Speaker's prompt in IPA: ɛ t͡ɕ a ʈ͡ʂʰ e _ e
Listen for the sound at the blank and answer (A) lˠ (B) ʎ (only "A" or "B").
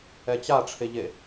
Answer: B